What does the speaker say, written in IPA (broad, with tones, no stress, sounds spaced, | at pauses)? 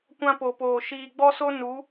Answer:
kʷ ã˦ p o˨ p oː˨ ʃ iː˨ ɡ͡b ɔ˦ s o˦ n u˨˦